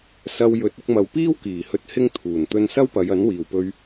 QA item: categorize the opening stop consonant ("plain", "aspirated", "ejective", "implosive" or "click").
plain